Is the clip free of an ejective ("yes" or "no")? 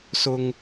yes